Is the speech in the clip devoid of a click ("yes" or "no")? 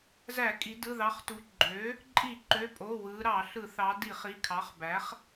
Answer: no